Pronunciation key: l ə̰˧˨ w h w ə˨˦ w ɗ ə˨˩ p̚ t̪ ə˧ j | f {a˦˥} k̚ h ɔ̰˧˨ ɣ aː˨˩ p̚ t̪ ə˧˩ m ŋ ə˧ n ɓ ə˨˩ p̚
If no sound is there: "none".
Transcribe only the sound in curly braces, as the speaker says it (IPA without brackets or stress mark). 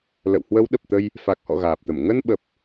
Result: a˨˩